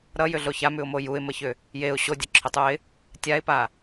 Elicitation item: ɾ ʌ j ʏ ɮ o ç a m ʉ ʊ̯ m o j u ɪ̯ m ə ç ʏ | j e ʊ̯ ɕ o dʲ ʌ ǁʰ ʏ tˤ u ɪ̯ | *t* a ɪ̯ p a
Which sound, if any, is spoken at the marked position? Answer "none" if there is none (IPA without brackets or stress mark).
tʲ